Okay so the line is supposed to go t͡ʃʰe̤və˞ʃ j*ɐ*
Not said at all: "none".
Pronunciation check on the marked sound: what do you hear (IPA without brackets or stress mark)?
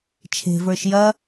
ɐ